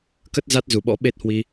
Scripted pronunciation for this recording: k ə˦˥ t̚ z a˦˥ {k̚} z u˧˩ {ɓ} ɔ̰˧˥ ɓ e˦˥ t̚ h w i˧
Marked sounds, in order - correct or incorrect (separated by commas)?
incorrect, correct